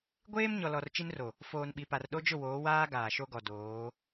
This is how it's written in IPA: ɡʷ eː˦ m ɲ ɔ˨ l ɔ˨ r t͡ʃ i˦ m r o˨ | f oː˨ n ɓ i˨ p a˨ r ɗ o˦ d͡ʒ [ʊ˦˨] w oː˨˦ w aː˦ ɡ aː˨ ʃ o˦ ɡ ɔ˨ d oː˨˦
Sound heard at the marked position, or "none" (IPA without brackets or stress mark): ʊ˦˨